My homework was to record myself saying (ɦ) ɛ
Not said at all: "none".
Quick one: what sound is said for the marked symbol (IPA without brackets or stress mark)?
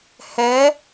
h